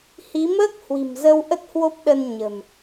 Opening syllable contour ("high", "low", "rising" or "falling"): rising